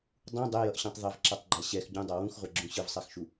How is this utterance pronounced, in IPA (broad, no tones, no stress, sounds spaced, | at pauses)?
dˤ ũ dˤ e j ʌ ʔ ɕ ũ tˤ ðˤ ɛ v ǁ a tˤ ɡ͡ǃ a ɕ ɛ x ɟ ũ dˤ a w ũ x ʁʷ ʌ ɡ͡ǁ ũ ɕ ɯ v sˤ a x ʃ u